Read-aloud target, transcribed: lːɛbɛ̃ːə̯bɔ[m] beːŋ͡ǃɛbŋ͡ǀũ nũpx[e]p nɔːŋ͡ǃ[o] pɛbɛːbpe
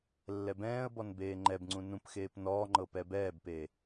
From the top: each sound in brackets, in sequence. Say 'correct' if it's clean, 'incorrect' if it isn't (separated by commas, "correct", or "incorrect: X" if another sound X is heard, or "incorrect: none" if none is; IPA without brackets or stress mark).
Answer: incorrect: n, incorrect: eː, incorrect: ɤ